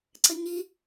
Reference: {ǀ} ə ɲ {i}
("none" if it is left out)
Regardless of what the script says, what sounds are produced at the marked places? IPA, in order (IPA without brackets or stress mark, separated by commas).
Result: ǀ, i